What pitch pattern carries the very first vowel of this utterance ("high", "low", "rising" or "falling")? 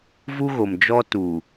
high